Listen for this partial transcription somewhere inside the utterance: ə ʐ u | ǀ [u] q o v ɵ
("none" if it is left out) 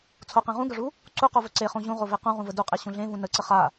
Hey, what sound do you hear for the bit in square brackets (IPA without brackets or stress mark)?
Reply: u